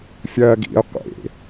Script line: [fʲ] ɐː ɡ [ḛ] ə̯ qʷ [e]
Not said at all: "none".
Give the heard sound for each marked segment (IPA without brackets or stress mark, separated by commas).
fʲ, ḭ, ḛ